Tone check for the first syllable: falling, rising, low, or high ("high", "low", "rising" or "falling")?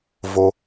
low